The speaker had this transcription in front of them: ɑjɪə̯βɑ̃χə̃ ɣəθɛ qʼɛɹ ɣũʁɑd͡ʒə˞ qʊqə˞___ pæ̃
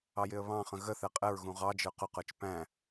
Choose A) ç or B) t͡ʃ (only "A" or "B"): B